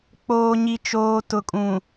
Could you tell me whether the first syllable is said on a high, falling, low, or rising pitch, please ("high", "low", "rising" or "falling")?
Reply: low